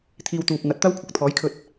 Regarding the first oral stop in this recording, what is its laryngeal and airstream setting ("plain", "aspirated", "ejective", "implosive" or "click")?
aspirated